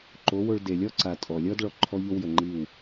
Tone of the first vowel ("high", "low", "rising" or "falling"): rising